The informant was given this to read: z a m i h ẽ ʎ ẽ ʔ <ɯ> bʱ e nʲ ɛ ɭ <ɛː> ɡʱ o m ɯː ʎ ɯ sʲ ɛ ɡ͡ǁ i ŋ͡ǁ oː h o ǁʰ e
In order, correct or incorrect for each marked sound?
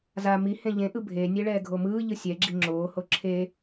correct, correct

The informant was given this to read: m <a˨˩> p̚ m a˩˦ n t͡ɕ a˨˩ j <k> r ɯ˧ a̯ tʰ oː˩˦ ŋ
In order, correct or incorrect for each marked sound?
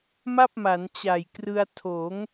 incorrect, correct

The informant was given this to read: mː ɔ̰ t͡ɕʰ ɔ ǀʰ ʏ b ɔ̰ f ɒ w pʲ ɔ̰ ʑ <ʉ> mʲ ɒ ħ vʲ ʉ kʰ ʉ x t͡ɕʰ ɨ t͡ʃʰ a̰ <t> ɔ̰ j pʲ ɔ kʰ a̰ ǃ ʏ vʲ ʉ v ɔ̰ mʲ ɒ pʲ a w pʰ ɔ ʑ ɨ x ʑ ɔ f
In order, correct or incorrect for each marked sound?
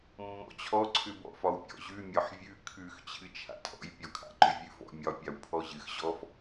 correct, incorrect

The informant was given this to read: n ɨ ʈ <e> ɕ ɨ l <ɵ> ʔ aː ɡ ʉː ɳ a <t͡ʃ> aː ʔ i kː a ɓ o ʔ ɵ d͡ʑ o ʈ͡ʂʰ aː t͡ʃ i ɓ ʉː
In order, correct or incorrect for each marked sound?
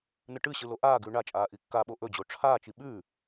incorrect, incorrect, incorrect

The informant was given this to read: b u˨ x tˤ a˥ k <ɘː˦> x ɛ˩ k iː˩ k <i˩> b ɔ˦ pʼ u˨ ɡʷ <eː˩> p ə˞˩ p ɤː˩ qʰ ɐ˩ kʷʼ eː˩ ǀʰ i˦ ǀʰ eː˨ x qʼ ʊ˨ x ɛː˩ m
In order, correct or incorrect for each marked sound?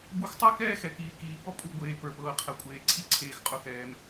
incorrect, incorrect, correct

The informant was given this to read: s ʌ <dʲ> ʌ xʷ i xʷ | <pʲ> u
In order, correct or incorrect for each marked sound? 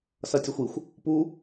incorrect, incorrect

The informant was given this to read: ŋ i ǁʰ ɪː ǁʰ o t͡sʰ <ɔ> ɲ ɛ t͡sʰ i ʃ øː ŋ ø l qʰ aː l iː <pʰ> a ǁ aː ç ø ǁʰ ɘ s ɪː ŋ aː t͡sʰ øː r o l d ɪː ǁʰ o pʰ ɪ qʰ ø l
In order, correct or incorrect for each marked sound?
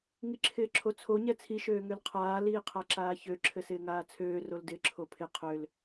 incorrect, incorrect

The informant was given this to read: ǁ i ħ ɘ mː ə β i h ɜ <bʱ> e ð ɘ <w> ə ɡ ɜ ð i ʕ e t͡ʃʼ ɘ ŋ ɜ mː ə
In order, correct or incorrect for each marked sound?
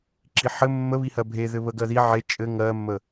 correct, incorrect

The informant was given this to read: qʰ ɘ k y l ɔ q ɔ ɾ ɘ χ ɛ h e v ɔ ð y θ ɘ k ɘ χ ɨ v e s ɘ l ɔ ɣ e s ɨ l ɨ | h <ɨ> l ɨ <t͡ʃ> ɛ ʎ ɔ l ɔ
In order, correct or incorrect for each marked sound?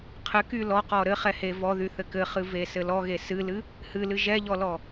correct, incorrect

